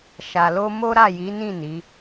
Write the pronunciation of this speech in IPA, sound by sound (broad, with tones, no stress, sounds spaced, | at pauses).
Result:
ʃ a˨ l o˧ m o˦ ɾ a˦˨ j i˨˦ n ĩ˦˨ n i˨˦